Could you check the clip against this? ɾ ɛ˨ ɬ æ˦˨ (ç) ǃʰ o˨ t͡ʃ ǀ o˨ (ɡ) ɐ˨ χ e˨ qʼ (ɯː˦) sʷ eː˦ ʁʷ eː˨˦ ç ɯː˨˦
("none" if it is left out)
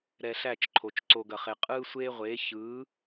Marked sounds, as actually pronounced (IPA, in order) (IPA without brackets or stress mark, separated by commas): t͡ʃ, ɡ, ɯː˦